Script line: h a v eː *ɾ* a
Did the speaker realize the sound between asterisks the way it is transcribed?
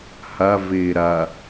yes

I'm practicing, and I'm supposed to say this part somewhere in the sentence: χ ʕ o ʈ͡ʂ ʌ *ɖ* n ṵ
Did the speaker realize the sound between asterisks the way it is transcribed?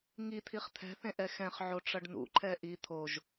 yes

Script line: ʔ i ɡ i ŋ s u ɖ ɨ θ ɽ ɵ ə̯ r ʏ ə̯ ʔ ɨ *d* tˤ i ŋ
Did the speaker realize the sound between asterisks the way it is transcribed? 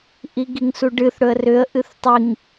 no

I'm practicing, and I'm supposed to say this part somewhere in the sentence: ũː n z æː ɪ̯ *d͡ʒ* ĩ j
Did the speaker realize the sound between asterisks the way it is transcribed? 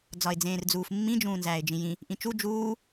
yes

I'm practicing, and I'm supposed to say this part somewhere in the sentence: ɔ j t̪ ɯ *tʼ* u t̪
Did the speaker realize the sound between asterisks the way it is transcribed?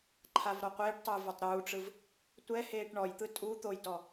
yes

